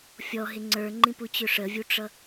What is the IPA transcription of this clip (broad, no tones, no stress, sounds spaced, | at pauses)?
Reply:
fʲ ɔ ɦ ɪ ŋ͡ǀ ə˞ ŋ͡ǃ ĩ p u t͡ɕ ʊ ʂ ə vʲ u ʈ͡ʂ ʌ